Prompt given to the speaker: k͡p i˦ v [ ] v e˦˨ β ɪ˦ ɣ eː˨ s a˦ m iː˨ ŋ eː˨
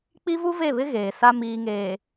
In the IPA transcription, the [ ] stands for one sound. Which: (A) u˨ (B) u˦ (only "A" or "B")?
B